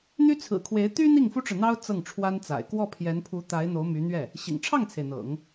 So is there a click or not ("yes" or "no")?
no